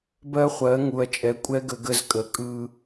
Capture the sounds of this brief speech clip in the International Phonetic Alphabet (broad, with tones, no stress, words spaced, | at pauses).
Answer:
bɜ˦χʷɜ˨˦ŋu˨ɐ̯t͡ʃʼɛ˨˦ kʷʼɛ˦ɡə˨ ɡə˦zkʼə˨kʼɯ˦